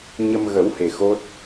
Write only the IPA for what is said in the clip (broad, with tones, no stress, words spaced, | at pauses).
ɲə˧mɣə˨˩˦whe˨˩ xo˦˥t̚